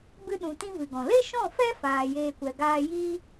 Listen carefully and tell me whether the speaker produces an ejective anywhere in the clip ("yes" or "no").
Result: no